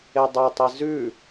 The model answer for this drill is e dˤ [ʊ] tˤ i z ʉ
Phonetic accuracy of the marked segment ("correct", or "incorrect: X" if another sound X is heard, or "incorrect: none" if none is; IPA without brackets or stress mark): incorrect: ɵ